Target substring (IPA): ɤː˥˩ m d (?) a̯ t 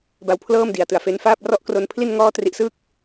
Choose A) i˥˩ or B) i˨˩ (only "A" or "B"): B